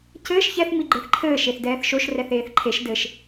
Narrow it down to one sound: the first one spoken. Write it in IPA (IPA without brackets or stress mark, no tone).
c